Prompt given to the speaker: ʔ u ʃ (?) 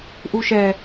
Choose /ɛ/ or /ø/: ɛ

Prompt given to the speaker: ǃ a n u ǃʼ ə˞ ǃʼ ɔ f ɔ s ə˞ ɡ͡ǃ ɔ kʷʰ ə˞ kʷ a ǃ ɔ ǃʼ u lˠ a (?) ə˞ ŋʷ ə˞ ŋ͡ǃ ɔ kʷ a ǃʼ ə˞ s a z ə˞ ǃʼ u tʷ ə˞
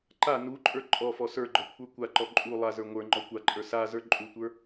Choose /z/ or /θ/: z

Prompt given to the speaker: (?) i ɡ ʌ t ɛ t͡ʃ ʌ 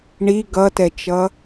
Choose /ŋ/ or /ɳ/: ɳ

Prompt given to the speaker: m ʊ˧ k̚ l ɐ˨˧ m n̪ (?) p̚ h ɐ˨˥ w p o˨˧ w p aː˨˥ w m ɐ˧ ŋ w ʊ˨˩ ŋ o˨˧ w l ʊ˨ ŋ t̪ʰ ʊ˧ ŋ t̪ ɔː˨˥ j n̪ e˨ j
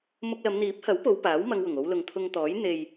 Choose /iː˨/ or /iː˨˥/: iː˨˥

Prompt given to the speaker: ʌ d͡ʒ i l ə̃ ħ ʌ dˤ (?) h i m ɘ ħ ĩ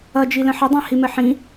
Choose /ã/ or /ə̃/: ã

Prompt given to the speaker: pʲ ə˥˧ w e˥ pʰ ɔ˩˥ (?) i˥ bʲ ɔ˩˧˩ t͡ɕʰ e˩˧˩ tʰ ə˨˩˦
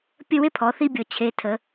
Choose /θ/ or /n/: θ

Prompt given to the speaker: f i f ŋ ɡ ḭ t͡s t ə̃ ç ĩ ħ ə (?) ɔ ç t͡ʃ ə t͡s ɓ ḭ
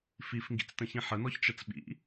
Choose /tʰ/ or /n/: n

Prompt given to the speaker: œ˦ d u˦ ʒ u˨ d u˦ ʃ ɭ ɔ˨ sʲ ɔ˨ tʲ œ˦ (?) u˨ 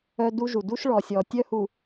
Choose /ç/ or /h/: h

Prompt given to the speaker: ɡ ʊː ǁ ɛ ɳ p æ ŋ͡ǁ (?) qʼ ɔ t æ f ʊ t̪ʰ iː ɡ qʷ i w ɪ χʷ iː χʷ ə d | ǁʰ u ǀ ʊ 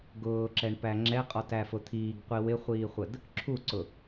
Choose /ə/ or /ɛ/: ɛ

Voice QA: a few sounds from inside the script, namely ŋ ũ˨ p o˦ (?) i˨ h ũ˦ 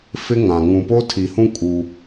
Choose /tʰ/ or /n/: tʰ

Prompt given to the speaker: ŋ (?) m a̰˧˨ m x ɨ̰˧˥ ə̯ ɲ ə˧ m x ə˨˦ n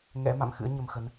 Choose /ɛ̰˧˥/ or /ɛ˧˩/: ɛ̰˧˥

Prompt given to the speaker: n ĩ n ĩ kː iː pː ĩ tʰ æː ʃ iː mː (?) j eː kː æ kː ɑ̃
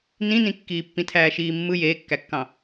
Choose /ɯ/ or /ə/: ɯ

